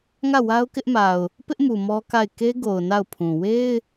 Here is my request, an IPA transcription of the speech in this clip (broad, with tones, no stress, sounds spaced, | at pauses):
ŋ ä˦˨ w a˦ ʊ̯ k ɪ˦ ʔ m a˨ ʊ̯ | p ɪ˦ ʔ m u˨ m ɔ˦ k a˦˨ ɪ̯ k e˦ ɡ o˨ ʊ̯ n a˦˨ ʊ̯ pʰ ũ˨ w e˦ ɪ̯